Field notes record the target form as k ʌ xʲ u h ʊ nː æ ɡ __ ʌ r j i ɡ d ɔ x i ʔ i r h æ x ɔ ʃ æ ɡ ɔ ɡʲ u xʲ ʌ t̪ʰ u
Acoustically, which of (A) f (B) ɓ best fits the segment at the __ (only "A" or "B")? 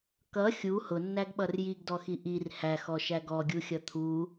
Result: B